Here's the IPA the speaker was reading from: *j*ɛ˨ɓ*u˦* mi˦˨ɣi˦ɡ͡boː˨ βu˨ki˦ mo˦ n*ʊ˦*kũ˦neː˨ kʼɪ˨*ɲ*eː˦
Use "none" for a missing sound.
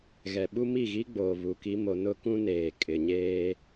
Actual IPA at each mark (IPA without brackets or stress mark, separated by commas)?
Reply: ɣ, u˦, ʊ˦, ɲ